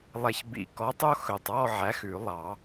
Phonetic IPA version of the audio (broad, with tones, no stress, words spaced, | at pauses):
lˠɛ˨çbḭ˨˩˦kɔ˨˥tˤo˦ xɵ˨tˤɔ˦˨ ʕæ˨˥xʉ˨˩˦ lˠɑ˨˩˦